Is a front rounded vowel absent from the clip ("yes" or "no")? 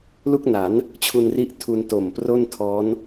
yes